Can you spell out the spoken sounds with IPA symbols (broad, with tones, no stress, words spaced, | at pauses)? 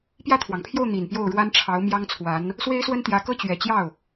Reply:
pjä˥˩t̪ʰwɑ˩ŋpʰjo˥˩ʊ̯ n̪i˨˩npjo˥˩ʊ̯ɻwa˥n ʈ͡ʂʰɑ˧˥ʊ̯mjɑ˥ŋt͡sʰwa˧˥n | swe˥ɪ̯swə˥nt̪jä˧˥kɤ˥ t͡ɕɥɛ˨˩t͡ɕjɑ˥˩ʊ̯